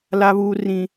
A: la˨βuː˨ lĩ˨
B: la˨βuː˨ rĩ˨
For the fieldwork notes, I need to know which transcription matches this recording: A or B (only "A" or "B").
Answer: B